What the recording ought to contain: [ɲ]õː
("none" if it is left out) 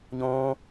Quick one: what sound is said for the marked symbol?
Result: ɲ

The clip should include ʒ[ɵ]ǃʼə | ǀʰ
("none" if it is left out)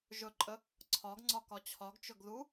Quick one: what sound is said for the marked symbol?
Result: ɵ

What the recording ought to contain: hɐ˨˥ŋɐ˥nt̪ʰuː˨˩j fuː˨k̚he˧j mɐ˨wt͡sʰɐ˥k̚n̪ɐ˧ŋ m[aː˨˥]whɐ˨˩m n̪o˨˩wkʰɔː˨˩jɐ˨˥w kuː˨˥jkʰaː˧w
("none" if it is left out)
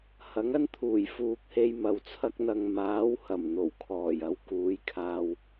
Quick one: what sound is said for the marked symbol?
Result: aː˨˥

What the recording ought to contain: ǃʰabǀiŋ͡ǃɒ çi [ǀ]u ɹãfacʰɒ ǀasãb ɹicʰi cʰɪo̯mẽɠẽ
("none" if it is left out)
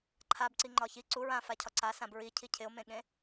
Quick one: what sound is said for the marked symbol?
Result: ǀ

